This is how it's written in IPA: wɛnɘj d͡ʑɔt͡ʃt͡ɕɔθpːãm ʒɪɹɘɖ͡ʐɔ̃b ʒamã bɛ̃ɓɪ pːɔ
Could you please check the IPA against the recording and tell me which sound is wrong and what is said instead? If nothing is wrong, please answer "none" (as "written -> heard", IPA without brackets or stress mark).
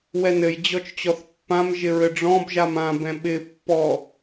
none